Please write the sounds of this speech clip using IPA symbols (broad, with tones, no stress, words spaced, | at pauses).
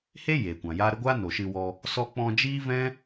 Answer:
he˦ jeː˨kʷã˨jaː˦ ɾə˦ɡʷaː˦ no˨ʃɨ˧wɔ˧ | sɔ˧k͡pɔ̃˧ d͡ʒiː˦vɛ̃˦